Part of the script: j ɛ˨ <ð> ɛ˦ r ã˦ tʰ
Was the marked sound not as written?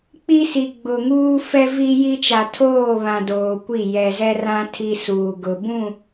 yes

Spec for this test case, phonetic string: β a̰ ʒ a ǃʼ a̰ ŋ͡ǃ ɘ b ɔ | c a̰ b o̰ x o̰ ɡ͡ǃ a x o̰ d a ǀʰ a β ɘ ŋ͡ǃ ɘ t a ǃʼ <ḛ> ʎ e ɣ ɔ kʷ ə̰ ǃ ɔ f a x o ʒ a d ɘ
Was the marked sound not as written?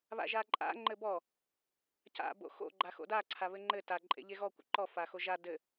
no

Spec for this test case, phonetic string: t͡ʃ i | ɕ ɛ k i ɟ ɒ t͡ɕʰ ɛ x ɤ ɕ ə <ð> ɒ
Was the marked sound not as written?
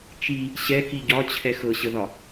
no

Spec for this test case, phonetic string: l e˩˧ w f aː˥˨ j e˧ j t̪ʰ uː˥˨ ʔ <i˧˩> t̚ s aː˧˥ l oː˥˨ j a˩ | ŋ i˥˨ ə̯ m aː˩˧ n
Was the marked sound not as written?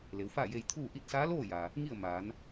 yes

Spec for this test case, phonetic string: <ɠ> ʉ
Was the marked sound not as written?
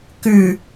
yes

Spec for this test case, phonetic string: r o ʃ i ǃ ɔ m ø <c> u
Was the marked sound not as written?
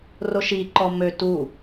yes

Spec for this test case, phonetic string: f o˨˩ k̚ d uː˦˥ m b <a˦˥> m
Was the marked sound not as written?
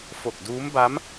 no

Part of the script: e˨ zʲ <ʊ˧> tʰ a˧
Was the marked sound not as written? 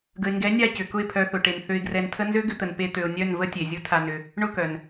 yes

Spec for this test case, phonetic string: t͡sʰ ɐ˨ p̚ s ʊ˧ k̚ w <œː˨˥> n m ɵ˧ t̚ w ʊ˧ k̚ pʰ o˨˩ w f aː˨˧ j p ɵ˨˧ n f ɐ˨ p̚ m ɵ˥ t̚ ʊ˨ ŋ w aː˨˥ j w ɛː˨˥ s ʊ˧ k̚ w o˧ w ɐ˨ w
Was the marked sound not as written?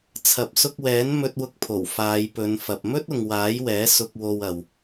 yes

